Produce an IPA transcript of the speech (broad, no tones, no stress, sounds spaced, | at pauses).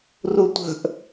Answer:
r u tʷ ə̤ ʔ